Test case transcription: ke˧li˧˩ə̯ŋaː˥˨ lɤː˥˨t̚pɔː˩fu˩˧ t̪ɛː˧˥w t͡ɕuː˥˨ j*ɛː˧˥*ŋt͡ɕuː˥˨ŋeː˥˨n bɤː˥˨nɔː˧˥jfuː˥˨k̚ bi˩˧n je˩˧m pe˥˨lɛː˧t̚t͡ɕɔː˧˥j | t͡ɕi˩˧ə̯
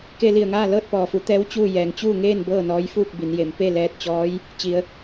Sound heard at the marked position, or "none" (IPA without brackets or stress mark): ɛː˩